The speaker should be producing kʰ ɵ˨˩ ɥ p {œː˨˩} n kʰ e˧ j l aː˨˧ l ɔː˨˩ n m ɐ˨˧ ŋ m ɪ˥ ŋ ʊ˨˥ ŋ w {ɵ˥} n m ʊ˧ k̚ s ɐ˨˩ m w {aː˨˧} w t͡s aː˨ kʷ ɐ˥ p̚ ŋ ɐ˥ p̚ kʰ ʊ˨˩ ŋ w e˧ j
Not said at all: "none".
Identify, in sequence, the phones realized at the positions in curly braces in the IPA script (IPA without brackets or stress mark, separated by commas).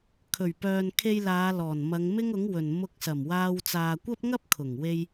œː˨, ɵ˨, aː˧